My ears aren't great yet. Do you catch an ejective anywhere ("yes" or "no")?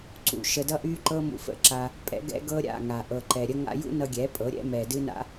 yes